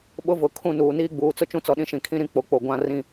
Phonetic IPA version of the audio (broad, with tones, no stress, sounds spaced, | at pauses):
ɓ ʊ˦ v ʊ˨ kʰ ũ˦˨ n uː˨ n iː˦ ɡ͡b uː˨ t͡s ʊ˦ t͡ʃ ũ˦ t͡s ɔ˨ ɗ ĩ˦ ʃ ĩ˨ kʰ ĩ˦ ɾ ĩ˦ k͡p o˨ k͡p o˨ ɡʷ ã˦˨ r ĩ˦˨